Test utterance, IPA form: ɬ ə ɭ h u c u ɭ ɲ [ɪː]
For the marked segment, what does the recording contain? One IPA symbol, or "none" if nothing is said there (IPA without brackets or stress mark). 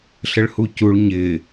ɪː